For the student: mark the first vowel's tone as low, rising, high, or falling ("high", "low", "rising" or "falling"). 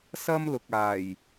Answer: high